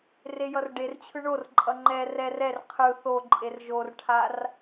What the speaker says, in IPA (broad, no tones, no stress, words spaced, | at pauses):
rejʌrɖert͡ɕʰɯ ɳorǃʼʌ ŋ͡ǃɛ rɛr ɛr qʰɯ θoǃʼer ʒorʈʰar